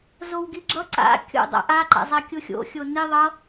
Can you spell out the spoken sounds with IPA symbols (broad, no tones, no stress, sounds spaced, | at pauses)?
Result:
z o w ɡ i ɡ͡ǁ ʌ ǀ a̰ kʲ o̰ dˤ a̰ ʔ a ǃ a̰ zˤ a kʲ o xʲ o̰ xʲ o n i ðˤ ʌ